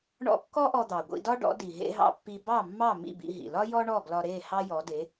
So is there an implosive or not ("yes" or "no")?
no